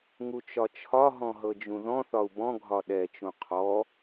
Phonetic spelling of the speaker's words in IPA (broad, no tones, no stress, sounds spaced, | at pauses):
ŋ u t͡ʃ ɒ t͡ʃʰ ɒ ɦ ɔ̃ ɦ ɤ d͡ʒ ũ ð ɔ̃ θ ɒ u̯ b ɔ̃ ɡʱ ɒ ɗ ɛ t͡ʃ ũ qʰ ɔ